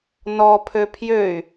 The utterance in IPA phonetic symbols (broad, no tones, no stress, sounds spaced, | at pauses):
n ɔ pʰ ø pʰ j ø y̯